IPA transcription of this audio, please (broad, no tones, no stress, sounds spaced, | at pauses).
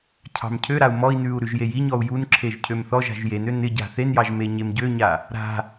cʰ ɑ̤ m cʰ ø ɾ a u̯ m ɔ i̯ n ʉ u̯ ɾ ʉ ʒ j e j i ɲ ɔ u̯ j u n ǁʰ e ʒ cʰ ø m θ ɔ ʒ a̤ ʒ j e n ø n ɪ ɟ a̤ θ e n j ɑ ʒ m e ɲ e m ɟ ø ɲ a | ɾ a̤